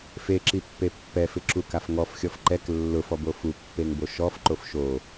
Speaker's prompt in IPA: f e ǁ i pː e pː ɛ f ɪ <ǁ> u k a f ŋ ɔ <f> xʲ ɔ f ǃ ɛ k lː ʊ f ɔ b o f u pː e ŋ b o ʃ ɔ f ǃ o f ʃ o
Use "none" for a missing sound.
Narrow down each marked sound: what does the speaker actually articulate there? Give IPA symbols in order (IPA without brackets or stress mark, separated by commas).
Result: ǁ, f